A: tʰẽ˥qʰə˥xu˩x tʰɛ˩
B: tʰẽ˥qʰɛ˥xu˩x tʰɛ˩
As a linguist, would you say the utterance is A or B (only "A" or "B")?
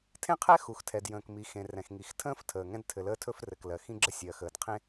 B